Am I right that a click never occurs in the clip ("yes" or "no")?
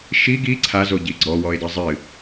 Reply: no